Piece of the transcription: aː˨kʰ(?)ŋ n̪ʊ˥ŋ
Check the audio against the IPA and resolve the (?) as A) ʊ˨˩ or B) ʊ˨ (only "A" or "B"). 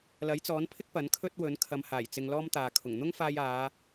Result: A